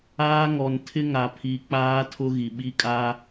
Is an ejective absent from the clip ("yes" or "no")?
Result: no